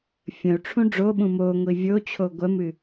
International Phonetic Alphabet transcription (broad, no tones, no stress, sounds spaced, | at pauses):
fʲ ə̃ u̯ ʈ͡ʂʰ ũ ɖ͡ʐ o ɓ ũ m o ŋʷ i vʲ o t͡ɕʰ o ɡʷ ɜ m ɨ